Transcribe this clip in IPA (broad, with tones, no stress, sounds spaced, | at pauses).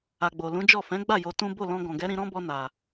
a˨ ɡ͡b o˨ l ũ˨˦ d͡ʒ ɔ˦˨ f ɛ̃˨˦ ɡ͡b a˦˨ j o˧ t ũ˦ b o˦˨ l ɔ̃˧ ɡ ɔ̃˨ ɡ ɛ˨˦ ɾ ĩ˧ ɾ ɔ̃˦ b ɔ˧ n a˨